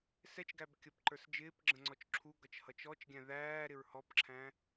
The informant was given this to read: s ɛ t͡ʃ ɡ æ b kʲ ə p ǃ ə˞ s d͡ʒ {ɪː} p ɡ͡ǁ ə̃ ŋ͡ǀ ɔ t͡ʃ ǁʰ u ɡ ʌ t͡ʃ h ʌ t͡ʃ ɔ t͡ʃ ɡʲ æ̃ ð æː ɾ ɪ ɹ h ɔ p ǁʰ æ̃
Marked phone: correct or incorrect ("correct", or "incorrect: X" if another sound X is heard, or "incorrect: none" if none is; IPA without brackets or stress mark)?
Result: correct